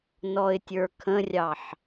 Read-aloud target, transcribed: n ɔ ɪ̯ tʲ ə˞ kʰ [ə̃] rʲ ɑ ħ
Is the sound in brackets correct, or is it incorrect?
correct